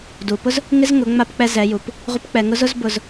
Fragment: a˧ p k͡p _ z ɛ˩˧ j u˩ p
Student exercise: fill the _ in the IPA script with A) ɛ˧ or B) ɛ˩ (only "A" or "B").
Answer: A